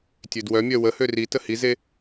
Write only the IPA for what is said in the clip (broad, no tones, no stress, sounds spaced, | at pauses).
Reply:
tʲ ø d w œ mʲ œ w ə h ø r i t ə h i z e